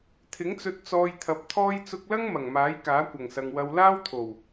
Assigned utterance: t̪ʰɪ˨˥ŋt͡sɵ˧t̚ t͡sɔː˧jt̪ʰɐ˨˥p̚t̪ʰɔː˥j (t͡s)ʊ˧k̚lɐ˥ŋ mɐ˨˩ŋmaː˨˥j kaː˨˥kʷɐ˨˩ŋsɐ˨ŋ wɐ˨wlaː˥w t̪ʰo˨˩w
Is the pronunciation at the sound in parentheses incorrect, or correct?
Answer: correct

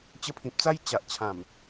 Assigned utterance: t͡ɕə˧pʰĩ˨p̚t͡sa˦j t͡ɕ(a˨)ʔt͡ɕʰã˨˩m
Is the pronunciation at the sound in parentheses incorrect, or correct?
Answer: correct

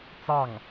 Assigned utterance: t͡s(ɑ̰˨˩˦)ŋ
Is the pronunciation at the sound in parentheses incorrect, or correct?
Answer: incorrect: ɑ˥˩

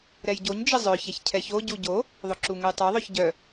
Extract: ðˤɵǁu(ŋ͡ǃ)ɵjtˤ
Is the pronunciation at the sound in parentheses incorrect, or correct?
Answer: incorrect: ŋ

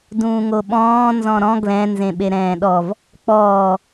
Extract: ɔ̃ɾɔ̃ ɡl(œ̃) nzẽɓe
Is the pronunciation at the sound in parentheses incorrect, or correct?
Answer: incorrect: ɛ̃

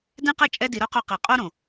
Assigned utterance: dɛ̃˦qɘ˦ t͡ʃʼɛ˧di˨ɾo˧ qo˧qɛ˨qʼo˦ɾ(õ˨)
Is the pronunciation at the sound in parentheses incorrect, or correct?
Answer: correct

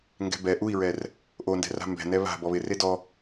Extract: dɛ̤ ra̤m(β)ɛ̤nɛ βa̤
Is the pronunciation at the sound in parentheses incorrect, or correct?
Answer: incorrect: b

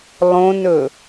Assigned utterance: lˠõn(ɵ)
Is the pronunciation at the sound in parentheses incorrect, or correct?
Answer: correct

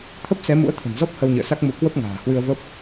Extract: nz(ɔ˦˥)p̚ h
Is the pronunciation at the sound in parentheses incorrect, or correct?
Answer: correct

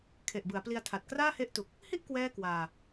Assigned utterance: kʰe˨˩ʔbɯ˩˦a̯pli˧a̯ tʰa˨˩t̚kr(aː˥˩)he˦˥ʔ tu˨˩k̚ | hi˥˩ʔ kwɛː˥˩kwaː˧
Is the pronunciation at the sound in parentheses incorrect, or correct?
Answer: correct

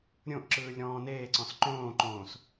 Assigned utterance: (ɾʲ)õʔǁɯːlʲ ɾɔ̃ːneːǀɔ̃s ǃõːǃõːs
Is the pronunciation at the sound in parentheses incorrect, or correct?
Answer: correct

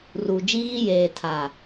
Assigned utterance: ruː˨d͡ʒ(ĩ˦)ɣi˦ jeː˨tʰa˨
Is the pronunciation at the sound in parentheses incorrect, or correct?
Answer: incorrect: i˦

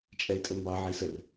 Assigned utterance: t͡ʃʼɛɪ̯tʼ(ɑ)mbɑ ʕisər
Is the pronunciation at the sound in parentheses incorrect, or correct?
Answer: incorrect: ə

